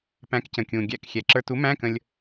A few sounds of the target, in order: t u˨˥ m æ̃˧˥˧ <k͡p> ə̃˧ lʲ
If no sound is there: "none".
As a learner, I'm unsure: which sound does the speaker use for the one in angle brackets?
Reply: k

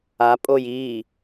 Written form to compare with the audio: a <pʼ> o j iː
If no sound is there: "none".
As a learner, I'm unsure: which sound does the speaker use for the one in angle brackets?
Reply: pʼ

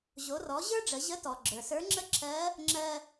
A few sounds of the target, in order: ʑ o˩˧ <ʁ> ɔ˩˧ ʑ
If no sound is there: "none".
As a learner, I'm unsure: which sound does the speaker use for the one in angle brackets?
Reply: r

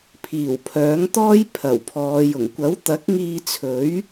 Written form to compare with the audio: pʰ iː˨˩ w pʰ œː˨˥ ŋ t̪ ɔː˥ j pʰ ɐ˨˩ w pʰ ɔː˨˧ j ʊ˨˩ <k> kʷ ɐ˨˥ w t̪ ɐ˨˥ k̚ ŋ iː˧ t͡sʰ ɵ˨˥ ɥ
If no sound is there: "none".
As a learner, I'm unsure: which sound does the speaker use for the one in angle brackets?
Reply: ŋ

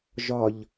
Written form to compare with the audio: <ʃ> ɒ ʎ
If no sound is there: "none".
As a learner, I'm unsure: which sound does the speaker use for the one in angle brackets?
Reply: ʒ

